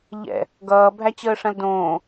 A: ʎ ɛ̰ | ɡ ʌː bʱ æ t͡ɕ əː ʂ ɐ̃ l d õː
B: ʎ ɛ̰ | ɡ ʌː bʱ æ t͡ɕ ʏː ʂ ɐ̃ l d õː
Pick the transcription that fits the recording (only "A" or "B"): A